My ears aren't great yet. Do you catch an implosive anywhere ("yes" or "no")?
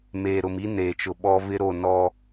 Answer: yes